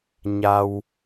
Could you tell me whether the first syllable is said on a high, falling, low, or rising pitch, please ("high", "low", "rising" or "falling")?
low